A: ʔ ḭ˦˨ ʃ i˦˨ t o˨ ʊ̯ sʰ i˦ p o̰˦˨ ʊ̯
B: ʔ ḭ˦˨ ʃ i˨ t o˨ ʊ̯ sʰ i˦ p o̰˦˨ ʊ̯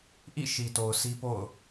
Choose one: B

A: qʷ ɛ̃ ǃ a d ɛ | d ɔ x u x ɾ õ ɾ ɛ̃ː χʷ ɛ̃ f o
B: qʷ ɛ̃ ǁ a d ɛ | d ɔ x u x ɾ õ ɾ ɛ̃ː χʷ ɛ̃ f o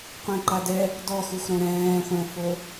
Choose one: A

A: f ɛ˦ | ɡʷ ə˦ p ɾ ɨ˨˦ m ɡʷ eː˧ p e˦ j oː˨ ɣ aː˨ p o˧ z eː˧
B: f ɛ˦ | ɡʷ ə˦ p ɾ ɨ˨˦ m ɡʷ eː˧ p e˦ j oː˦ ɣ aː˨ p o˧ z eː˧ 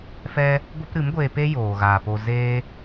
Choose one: A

